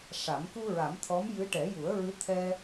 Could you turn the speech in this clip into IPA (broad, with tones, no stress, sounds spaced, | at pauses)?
ʂ a˨˩˦ m k u˧ ɹ a˨˩˦ m t̪ʰ ɔ˧˥ m j ɨ˧˥ ʈ ɛ˨˩˦ j u˨˩˦ ə̯ ɹ ɨ˧˥ t̪ʰ ɛ˧